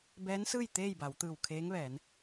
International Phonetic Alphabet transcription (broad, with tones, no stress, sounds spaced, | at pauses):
b ɛː˧˥ n s ɯː˥˨ j t̪ eː˥˨ j b a˩˧ w t̪ ɯː˧˩ w kʰ eː˧˥ ŋ ʋ ɛː˩˧ n